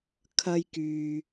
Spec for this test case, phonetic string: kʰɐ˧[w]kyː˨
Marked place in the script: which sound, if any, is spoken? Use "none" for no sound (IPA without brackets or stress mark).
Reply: j